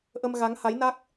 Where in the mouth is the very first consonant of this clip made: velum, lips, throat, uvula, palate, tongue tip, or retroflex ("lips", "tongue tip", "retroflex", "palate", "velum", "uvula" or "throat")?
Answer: throat